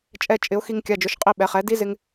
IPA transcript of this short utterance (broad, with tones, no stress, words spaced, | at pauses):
t͡ʃʼɛ˧t͡ʃʼɪ˩˧ʊ̯ xi˧ŋkʲa˩˧˩d͡ʒʊ˩˧ʃ qʼi˧ ɓɛ˩˧χɛ˩˥ di˦˥zɪ˧ŋ